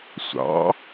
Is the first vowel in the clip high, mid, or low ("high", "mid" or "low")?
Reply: low